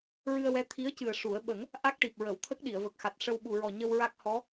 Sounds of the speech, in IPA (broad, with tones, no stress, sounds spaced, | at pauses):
ɹ ɨ˧ ə̯ w ɛ˧˥ t̪ʰ i˧˥ ə̯ c ɨ˨˩ ə̯ ʂ u˨˩˦ ə̯ ɓ ə˨˩˦ ŋ | ʔ a˦˥ k̚ ʈ i˨˩ p̚ ɹ ə˨˩˨ w t̪ʰ ə˦˥ k̚ ɗ i˨˩˨ ə̯ v ə˨˩ k̚ x a˨˩ t̚ ʂ ə˧ w ɓ u˨˩ ɹ ɔ˨˩ ɲ ə˧ w ɹ a˦˥ k̚ h ɔ˧˥